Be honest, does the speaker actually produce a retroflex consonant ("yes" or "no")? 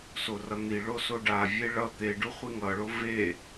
yes